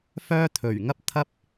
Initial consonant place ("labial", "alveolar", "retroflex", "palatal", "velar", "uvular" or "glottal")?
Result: labial